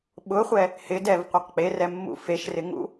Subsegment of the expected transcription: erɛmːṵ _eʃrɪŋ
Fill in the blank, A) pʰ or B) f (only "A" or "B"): B